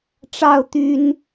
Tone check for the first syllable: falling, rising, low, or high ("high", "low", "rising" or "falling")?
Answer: high